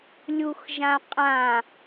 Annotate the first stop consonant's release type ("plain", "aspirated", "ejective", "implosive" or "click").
ejective